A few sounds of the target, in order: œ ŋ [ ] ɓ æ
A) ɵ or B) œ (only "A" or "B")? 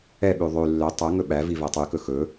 A